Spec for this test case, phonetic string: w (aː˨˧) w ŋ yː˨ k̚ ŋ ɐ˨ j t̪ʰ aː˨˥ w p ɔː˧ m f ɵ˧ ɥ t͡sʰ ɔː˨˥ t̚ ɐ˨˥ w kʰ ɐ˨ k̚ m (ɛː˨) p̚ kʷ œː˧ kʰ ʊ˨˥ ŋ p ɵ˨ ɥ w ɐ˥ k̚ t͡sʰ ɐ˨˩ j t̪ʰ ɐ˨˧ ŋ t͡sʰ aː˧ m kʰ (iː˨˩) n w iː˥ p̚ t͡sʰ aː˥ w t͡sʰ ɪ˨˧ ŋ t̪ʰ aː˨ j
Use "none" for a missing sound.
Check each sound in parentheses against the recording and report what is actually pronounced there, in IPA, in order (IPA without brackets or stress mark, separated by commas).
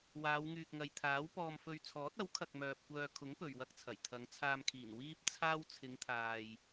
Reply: aː˨˧, œː˨, iː˨˩